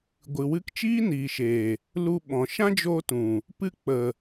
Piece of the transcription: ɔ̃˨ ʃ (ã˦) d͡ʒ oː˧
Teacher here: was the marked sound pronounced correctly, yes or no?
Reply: yes